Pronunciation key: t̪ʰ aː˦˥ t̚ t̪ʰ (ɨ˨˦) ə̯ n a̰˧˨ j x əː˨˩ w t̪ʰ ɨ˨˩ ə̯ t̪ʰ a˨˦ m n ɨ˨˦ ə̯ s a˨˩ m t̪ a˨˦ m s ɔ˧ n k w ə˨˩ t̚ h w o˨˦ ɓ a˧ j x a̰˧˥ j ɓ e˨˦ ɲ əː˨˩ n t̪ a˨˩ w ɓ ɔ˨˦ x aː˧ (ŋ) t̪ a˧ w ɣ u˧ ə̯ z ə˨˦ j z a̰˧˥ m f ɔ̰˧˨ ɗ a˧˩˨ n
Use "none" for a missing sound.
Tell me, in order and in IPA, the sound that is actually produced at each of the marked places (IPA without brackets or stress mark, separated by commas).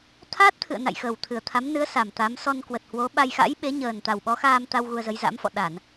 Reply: ɨ̰˧˨, m